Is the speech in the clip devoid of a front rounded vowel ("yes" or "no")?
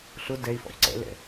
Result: yes